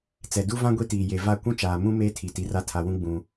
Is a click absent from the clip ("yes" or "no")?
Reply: yes